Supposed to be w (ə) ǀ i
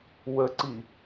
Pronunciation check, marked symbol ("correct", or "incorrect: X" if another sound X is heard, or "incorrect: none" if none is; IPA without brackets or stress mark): correct